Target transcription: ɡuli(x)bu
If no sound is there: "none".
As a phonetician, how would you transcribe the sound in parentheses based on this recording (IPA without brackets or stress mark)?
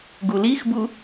x